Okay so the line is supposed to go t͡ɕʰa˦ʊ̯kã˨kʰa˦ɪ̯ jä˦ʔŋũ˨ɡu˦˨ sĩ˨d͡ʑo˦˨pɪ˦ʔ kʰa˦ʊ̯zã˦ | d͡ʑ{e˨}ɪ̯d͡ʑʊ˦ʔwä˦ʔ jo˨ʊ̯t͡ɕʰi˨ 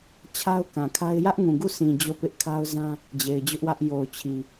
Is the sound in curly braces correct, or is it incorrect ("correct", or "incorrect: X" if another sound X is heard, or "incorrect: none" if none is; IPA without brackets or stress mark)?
correct